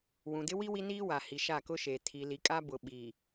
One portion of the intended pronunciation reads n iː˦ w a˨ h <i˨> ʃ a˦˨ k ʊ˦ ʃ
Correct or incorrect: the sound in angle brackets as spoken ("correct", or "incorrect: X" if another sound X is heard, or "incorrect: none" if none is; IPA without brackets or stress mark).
correct